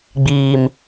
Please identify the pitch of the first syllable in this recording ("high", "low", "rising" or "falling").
low